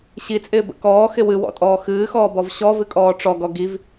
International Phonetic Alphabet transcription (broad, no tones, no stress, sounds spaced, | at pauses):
ɕ i t͡sʼ ɪː b ə̰ k ɔː x ɪ w ɨ w ɔ̰ tʼ ɔː x ɨː x ɔː b ɔ v ɕ ɔ v ɨ kʼ ɔː ʈ͡ʂ ɔ ɡ ɔ ɡ i v